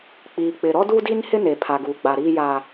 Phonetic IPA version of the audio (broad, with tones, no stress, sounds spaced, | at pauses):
k͡p iː˨ k͡p ɪ˨ ɾ ɔ˦ d u˦ d i˦ n h ɪ˦ n e˨ pʰ a˨ ɡ uː˨ ɡ͡b a˨ ɾ iː˦ j aː˦